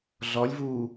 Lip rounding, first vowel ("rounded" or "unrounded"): rounded